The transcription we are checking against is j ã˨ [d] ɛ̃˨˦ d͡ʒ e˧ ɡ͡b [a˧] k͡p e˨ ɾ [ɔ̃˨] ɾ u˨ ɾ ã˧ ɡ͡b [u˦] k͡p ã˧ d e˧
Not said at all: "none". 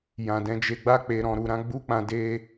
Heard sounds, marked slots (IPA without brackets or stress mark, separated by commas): d, a˧, ɔ̃˨, u˦